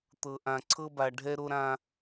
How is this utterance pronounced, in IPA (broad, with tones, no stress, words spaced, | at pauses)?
t̪ɤ˨ʔã˨ ǀʰɤ˦ba˨ ɖʱɛ˦ɾo˦ɾã˦